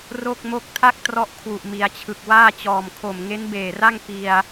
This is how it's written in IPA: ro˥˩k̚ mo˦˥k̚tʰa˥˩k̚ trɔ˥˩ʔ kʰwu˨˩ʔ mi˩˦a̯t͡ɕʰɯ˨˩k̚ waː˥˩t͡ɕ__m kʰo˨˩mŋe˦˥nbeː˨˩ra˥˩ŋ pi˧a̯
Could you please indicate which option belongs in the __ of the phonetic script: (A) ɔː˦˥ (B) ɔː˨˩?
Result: B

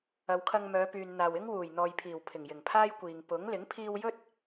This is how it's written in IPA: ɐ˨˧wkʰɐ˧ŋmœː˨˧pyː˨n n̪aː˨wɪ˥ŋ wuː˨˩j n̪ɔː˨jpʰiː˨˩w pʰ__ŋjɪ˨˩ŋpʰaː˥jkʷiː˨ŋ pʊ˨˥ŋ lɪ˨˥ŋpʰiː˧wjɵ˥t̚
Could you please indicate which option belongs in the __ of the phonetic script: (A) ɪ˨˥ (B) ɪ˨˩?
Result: B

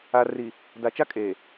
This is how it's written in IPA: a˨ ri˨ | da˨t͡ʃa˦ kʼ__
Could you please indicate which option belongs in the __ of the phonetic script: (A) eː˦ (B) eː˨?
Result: B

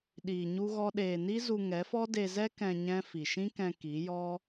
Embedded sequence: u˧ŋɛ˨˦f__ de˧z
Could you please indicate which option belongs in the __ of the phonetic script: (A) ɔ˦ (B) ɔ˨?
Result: A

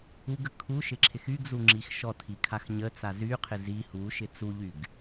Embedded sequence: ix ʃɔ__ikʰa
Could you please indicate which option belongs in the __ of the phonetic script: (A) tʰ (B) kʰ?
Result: A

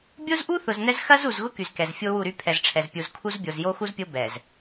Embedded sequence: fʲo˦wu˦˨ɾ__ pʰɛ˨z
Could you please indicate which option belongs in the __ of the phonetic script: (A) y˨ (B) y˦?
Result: B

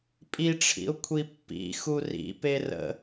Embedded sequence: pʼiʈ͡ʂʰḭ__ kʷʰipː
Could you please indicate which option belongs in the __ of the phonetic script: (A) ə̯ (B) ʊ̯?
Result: B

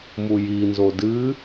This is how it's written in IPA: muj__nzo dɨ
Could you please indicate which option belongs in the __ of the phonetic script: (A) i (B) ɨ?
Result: A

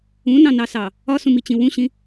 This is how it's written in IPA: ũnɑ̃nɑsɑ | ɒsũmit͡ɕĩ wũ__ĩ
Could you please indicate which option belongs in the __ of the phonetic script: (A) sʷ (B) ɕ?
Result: B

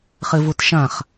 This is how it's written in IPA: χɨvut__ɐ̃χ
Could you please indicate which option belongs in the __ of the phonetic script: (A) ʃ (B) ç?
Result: A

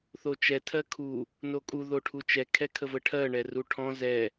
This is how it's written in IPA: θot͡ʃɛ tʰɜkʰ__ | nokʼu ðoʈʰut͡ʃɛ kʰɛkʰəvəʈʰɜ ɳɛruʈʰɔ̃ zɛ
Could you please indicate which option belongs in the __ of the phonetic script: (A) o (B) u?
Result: B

